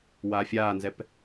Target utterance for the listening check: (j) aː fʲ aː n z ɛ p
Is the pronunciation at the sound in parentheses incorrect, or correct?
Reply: incorrect